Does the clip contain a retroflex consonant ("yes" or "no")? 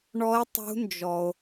yes